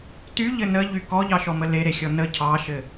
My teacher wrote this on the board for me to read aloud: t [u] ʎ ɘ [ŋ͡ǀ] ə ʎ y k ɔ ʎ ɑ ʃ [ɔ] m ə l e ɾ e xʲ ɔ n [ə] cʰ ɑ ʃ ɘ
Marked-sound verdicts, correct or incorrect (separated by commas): incorrect, incorrect, correct, correct